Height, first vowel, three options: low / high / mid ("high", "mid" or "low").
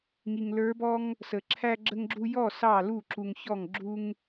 high